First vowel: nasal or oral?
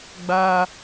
oral